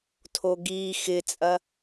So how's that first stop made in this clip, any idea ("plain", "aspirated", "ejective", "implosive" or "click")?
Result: aspirated